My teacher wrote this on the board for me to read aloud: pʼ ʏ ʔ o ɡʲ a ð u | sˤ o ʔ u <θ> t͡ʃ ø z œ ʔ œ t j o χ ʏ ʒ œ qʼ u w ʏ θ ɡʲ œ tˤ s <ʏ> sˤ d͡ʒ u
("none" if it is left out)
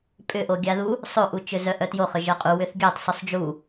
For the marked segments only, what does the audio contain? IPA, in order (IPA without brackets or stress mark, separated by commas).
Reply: none, u